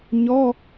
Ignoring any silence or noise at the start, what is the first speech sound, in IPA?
ɲ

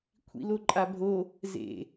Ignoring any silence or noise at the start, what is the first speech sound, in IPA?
kʷʰ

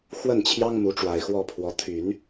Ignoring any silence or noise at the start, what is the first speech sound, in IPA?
x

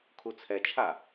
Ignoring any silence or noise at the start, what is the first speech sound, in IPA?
kʰ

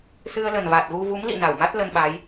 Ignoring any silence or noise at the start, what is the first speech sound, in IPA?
s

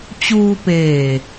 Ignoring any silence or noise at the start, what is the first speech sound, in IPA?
t͡ɕ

